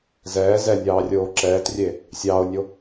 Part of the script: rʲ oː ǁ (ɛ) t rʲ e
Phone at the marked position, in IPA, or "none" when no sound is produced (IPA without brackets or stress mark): ɛː